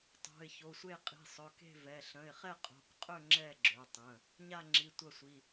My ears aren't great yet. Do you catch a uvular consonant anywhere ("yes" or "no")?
yes